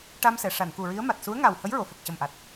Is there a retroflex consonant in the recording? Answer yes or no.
yes